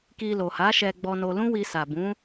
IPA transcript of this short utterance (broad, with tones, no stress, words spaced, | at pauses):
ki˧lo˨ha˨˦ʃɛ˧ ɡ͡bɔ˧no˧ lũ˦ wi˧sa˨bũ˨˦